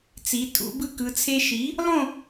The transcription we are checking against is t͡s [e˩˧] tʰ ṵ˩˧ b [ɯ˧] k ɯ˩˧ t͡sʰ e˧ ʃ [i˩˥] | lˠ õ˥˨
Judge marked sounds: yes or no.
no, no, yes

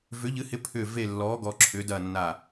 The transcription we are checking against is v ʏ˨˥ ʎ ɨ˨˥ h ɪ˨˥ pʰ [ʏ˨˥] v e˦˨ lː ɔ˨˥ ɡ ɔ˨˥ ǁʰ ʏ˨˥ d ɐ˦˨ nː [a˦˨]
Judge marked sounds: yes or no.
no, yes

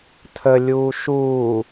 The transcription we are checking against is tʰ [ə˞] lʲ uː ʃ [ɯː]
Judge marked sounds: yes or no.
no, no

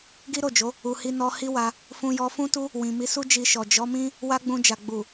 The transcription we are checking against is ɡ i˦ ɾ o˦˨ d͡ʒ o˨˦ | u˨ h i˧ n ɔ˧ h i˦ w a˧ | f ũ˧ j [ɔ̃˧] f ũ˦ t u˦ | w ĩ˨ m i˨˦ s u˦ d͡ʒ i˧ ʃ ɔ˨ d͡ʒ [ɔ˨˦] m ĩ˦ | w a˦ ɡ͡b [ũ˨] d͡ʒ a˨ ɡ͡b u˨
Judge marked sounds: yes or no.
no, yes, no

